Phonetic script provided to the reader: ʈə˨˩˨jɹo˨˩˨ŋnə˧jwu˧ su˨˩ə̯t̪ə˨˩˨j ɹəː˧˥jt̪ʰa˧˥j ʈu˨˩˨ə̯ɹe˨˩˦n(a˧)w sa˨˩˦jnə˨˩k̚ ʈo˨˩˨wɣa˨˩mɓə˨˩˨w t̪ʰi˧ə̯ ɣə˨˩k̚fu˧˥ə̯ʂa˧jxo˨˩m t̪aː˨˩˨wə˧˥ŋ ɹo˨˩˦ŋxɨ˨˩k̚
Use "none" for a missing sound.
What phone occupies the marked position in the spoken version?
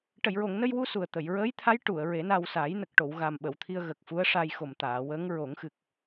a˧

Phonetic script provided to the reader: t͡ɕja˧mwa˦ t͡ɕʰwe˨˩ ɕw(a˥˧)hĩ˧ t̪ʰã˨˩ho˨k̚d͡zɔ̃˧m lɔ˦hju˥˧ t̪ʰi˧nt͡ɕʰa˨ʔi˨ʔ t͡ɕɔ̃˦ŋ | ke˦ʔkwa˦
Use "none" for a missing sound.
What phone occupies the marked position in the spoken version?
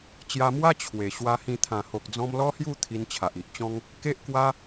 a˧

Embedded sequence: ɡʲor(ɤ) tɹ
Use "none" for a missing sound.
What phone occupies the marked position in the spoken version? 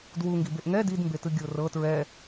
ɤ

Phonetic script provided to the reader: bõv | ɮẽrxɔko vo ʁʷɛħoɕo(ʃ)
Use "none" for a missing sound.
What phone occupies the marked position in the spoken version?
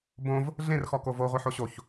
ç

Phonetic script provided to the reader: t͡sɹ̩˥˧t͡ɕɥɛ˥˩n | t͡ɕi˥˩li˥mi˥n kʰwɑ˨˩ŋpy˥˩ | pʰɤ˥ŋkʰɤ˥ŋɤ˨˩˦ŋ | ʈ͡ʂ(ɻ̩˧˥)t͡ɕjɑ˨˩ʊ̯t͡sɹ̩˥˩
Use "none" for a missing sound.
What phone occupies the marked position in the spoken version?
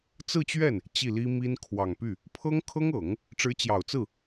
ɻ̩˧˥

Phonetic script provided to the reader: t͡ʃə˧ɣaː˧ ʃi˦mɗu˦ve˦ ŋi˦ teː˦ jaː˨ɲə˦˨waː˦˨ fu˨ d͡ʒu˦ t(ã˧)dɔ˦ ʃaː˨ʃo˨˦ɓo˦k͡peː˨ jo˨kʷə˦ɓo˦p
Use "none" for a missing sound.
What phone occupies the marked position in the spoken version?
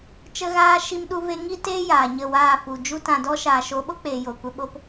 ã˧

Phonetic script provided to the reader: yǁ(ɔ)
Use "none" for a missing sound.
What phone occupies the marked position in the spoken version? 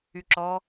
ɔ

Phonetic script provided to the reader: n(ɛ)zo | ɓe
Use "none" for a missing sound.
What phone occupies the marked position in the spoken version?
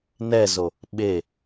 ɛ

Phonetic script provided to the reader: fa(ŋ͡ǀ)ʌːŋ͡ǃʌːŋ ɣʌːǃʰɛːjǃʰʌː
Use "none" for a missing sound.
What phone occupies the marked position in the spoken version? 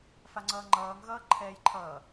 ŋ͡ǀ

